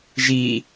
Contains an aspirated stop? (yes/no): no